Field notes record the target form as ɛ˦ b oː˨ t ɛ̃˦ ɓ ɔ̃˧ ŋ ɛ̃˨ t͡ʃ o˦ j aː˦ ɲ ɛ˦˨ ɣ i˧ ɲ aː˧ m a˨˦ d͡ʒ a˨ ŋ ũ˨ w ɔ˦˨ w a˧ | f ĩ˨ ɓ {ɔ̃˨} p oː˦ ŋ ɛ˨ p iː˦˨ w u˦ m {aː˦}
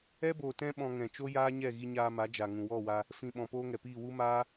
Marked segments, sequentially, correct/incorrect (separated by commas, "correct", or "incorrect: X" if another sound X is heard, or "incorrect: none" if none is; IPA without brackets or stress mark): correct, correct